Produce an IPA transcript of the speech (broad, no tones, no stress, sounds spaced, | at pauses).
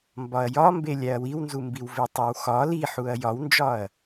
m b ɒ ɐ̯ j ɒ m b e lʲ æ ɐ̯ w i w n z u m b i w v e tˤ e w x ɒ l i ħ u ɐ̯ j ɒ w n d͡ʒ ɒ ɐ̯